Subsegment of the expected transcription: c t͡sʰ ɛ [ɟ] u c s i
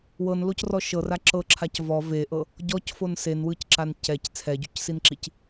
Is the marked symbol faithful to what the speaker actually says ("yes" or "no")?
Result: yes